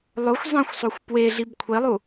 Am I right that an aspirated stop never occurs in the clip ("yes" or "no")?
no